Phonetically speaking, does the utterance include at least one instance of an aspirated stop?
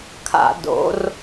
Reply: yes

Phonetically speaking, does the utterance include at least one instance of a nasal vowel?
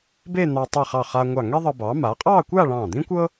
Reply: yes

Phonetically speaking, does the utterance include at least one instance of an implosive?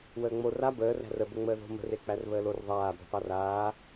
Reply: no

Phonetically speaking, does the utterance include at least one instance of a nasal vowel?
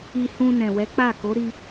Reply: yes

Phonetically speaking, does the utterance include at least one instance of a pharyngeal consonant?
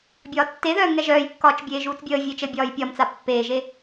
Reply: no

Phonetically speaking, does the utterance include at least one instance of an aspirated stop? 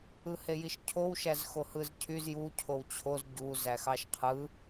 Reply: yes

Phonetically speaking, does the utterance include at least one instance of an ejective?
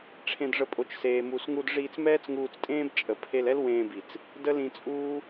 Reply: yes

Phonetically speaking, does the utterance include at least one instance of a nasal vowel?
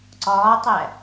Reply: no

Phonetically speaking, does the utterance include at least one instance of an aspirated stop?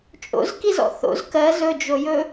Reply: no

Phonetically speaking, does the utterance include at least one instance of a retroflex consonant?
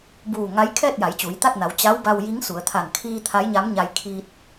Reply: no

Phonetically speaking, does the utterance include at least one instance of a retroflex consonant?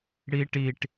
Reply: yes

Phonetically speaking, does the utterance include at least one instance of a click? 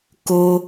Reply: no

